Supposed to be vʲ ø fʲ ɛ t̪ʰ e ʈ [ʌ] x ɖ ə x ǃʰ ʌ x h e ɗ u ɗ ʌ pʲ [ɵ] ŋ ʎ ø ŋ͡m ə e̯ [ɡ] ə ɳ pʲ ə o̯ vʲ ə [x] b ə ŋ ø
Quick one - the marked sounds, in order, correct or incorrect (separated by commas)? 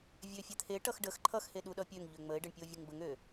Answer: correct, incorrect, incorrect, incorrect